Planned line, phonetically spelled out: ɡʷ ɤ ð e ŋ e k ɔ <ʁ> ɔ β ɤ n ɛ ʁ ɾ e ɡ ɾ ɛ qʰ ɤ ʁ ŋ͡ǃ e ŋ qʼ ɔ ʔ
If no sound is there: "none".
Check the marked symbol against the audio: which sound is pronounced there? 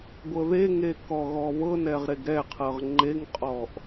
ɣ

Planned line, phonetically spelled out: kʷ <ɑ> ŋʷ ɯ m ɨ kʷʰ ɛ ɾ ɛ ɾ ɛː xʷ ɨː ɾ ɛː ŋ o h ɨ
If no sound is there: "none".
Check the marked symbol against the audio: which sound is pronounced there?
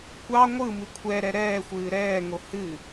ɑ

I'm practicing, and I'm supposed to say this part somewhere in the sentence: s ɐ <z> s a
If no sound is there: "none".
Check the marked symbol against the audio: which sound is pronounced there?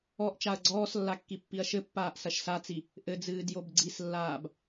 ʃ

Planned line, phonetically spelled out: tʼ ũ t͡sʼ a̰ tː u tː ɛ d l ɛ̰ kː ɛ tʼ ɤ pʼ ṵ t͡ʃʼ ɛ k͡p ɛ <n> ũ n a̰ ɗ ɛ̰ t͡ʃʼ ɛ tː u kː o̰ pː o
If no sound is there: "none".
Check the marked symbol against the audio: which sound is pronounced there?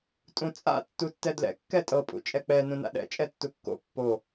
n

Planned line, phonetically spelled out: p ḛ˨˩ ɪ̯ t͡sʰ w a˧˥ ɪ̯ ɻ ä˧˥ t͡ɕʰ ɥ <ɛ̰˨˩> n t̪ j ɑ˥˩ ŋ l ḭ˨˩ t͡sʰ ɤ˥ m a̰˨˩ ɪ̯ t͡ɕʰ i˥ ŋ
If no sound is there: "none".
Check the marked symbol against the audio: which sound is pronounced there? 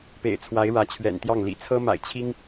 ɛ̰˨˩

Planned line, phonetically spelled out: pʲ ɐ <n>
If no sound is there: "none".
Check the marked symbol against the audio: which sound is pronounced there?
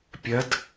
d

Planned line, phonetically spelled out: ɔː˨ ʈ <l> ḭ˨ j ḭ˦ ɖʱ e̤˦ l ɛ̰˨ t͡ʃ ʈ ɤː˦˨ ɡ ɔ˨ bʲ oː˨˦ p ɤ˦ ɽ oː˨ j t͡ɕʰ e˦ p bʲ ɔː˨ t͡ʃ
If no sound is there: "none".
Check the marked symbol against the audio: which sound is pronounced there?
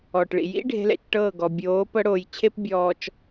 ɭ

